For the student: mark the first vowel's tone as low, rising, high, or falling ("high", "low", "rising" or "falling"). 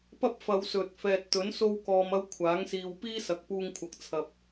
high